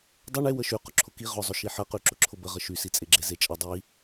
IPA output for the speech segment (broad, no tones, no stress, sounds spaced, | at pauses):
dˤ ə ɳ e w ə ʃ y q ʊ ǁʰ ʊ k i ʁ ʊ zˤ ʊ ʃ i ħ ə q y ǁ ʊ ǁʰ ʊ b ə ʁ ə ʃ y s i t͡sʼ e ɡ͡ǁ e z e t͡ʃʼ ə dˤ i